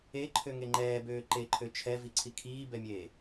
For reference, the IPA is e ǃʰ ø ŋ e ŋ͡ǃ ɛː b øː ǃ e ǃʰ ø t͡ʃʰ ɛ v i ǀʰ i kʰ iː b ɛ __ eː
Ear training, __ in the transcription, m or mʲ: mʲ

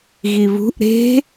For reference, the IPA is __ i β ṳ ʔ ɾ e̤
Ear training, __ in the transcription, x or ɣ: ɣ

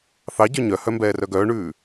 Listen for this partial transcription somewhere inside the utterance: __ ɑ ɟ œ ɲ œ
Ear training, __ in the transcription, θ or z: θ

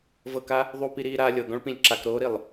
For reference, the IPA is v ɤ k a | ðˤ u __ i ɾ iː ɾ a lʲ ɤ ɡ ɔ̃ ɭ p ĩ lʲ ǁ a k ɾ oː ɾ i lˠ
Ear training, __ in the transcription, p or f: p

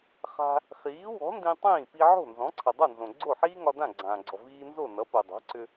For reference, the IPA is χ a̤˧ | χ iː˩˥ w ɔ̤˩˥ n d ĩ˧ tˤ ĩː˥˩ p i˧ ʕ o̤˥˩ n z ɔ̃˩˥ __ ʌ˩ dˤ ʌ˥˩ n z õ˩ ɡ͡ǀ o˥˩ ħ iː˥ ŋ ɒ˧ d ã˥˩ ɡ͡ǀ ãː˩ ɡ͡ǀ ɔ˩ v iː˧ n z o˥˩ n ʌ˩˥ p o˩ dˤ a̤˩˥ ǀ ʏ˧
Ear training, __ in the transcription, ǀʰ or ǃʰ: ǀʰ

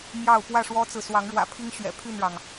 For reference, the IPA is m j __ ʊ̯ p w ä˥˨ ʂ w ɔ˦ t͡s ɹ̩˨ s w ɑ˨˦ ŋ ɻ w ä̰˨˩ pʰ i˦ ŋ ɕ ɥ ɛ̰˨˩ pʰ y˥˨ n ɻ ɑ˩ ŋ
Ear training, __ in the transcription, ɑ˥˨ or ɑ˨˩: ɑ˥˨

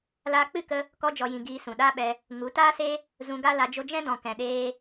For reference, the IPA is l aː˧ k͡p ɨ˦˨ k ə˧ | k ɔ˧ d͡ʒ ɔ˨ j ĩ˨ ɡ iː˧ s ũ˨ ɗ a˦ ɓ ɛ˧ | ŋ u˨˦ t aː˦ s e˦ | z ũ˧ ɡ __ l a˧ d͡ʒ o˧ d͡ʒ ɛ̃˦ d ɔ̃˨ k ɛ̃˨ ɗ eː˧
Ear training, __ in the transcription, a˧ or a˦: a˦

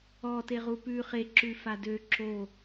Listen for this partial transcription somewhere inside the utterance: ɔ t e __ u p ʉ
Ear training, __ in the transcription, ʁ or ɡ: ʁ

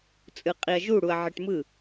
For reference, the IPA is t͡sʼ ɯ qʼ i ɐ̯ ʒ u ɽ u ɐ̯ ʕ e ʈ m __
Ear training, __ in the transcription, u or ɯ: ɯ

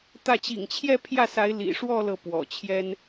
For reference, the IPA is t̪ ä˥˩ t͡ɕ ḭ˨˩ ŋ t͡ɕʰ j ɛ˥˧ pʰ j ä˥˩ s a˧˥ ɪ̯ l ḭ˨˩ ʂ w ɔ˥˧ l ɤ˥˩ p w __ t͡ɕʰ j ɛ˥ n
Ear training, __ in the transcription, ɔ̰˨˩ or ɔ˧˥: ɔ̰˨˩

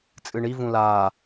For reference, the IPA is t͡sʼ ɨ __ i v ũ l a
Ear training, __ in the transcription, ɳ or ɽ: ɳ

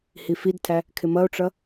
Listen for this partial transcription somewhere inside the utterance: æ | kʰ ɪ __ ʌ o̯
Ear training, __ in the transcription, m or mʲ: m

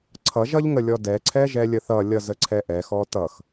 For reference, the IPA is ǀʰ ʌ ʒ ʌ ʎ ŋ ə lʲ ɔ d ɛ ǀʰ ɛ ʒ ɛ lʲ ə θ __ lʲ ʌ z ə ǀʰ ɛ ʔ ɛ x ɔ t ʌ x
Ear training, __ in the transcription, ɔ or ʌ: ʌ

